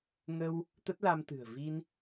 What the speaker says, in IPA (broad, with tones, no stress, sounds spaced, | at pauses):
ŋ ə˧ w | t̪ ə˦˥ t̚ l a˧ m t̪ ɨ̤˨˩ ə̯ v i˧ n